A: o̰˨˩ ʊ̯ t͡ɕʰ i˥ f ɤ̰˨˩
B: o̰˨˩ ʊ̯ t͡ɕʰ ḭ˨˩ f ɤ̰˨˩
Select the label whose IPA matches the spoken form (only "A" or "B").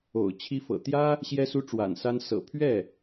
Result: A